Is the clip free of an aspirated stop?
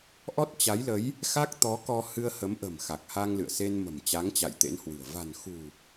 yes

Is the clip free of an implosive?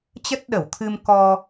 no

